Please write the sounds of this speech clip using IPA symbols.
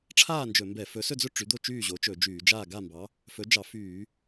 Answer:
ʈ͡ʂʰ aː˥˨ n d͡ʒ ɵ˧˩˧ m b ɛ˧˩˧ f ɵ˨˥ s ɵ˥˨ d͡z ɵ˥˨ ʈ͡ʂ y˨˥ d̪ o˥˨ t͡ʃ yː˥˨ ʑ o˨˥ t͡ʃ ɵ˧˩˧ d͡ʒ yː˧˩˧ d͡ʒ aː˥˨ ɡ a˥˨ m b ɑ˨˥ | f ɵ˨˥ d͡ʒ ɑ˧˩˧ f yː˧˩˧

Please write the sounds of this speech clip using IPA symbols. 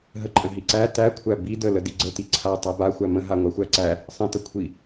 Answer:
ɦ ə ǃʼ ə̃ ɦ i ǀ æ t æ kʷʰ æ b i d ə l ə d i ɡ͡ǀ ə t i ǀʰ a tˤ æ b a xʷ æ m ə̃ ɦ a ŋʷ a xʷ æ ǀ æ | sˤ ə̃ t ə kʷʰ i

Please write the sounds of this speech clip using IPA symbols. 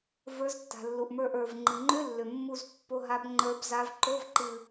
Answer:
v ə˞˨˦ z tː a̤˩ lː u˩ ʔ m ə˞˧˩ ʔ ə˞˩ v ŋ͡ǃ ɨ˩ ŋ͡ǃ ʏ˧˥˧ lː ʏ˩ mː u˧˩ z pː o˧˥˧ ɦ a˨˦ b ŋ͡ǃ ə˞˨˦ b z a˨˦ v ǃ o˧˥˧ v ǃ ɨ˧˩

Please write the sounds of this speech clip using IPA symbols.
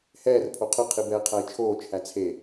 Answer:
h ɛː r pʰ o qʰ ə qʰ i b ɛː qʰ æ i̯ t͡ʃʰ oː t͡ʃʰ æ t͡sʰ e

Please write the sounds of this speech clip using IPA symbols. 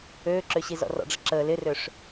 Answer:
øː ǁ ø ɕ i z ɔ̰ r ɔ̰ ɖ͡ʐ ə ǁ əː l ɪ r ø ʂ

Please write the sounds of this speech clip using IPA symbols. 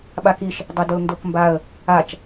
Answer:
ɓ a k i ʃ | dˤ e d o l n d o k m b a ə̯ | a t͡ʃ

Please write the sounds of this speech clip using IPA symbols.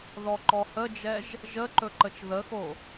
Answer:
ð ɔ ǃ ɔ h ə d͡ʒ ɛ ʒ | ʒ ə ǃ ɵ ǃ ə t͡ʃ ð ə x o

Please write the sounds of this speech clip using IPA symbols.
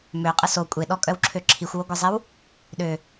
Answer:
m ø qʼ ə s o kʷʼ e ɗ ɔ kʼ œ w ǁʰ ø ǁʰ i xʷ w o ɡʷ e zˤ e w | ɗ ø

